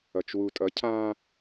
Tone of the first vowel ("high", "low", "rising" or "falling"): low